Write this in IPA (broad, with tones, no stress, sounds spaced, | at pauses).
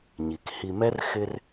ɲ i˨ k h i˨ m ɛ˦ r x ɪ˦ r